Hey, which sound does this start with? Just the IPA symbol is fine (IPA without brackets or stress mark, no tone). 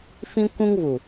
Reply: f